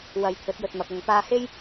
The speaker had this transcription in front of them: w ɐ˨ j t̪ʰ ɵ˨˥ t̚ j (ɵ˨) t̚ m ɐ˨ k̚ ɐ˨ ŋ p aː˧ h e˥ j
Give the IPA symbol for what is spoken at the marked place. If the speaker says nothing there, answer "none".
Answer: ɵ˨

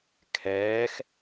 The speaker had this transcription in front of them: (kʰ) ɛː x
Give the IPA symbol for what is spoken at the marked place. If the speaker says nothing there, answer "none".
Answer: kʰ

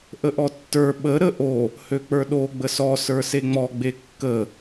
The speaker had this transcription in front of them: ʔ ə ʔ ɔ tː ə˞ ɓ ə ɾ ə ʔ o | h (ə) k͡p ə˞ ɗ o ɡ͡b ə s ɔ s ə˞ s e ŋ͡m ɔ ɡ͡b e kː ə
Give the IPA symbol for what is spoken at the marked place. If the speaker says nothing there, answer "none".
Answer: ø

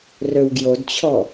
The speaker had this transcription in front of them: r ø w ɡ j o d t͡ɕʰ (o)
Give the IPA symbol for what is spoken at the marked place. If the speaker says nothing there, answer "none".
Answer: ɔ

